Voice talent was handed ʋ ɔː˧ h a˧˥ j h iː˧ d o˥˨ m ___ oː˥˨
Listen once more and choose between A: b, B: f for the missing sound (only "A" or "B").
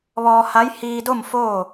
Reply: B